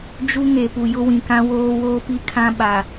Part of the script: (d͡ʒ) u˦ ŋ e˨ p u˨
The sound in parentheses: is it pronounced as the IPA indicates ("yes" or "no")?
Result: yes